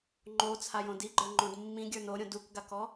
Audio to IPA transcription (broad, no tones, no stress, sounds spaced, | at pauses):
ŋ͡ǃ o t͡sʰ a j õ d i ɡ͡ǃ ə˞ ŋ͡ǃ õ d mː ĩ ɡʲ ə˞ n o ɾʲ õ d u k ɡ a k ɔ